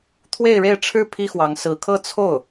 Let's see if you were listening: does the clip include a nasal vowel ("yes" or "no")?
no